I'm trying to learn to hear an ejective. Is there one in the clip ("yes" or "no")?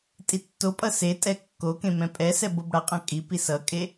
yes